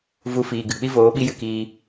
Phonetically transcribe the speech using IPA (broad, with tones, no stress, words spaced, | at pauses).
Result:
vu˧fiː˨ɡɨ˨ k͡pi˦voː˨˦ɓi˦ jɨ˧kiː˧